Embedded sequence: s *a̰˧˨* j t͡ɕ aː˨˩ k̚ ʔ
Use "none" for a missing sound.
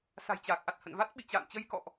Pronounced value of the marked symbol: a̤˨˩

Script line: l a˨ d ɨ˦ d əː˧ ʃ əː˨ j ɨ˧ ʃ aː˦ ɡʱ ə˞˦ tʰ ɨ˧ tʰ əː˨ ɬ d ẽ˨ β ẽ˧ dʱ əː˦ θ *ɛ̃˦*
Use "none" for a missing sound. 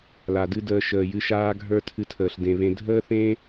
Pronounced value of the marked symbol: ẽ˦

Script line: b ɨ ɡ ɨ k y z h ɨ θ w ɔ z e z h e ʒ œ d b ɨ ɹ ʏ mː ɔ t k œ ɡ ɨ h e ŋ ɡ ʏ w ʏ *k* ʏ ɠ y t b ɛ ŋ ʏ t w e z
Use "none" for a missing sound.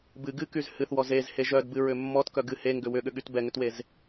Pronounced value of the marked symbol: ɠ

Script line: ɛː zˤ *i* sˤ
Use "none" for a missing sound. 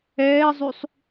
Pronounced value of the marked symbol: y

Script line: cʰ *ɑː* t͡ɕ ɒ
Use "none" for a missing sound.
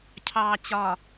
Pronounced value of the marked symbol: ɑː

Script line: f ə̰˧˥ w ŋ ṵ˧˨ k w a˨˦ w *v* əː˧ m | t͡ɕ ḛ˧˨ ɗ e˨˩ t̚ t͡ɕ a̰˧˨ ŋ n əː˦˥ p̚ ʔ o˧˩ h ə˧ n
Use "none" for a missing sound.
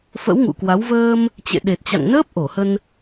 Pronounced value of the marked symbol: v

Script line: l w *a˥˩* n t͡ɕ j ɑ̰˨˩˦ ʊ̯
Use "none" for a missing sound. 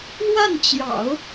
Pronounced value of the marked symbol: a˥˩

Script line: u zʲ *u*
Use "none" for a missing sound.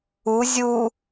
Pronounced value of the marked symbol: u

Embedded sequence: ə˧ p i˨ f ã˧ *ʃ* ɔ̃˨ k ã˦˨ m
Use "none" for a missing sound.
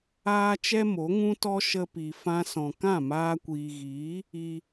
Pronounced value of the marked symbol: s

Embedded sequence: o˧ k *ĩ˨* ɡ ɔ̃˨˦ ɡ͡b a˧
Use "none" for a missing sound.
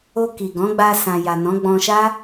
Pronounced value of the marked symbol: i˨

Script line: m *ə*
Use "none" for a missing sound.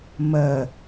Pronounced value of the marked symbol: ə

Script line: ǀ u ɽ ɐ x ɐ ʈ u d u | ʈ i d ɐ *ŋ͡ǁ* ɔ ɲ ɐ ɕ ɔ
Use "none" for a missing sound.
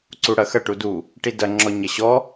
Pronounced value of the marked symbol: ŋ͡ǁ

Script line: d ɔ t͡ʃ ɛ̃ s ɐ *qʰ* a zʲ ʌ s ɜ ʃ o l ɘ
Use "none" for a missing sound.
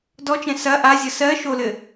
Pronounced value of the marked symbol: ʔ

